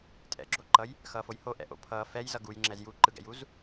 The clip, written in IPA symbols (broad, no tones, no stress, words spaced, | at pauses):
tʼɛ̰ɡ͡ǁoǃʌj | xʌːfojho ʔɛ̰ʔo̰pʰʌː fɛjzʌ ɡujŋ͡ǁɛz juǃɯɡɛ̰juz